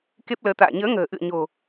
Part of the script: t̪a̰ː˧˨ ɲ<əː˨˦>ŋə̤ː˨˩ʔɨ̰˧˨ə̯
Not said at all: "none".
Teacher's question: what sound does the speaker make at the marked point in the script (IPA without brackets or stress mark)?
əː˨˦